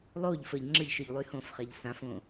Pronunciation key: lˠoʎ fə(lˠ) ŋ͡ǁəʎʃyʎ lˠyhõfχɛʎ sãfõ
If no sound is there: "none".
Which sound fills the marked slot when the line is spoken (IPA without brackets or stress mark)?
ʎ